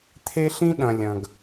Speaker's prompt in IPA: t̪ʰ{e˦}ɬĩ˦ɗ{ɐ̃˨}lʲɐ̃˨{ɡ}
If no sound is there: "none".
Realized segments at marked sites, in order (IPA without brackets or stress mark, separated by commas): e˦, ɐ̃˨, ɡ